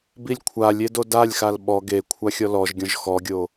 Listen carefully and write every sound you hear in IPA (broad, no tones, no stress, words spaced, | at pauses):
bilʲkʷʰalʲe dodalʲxal ɓɔ ɡe kʷʰaxʲɔlɔʒɡʲɔ̃ʒ xɔɡʲo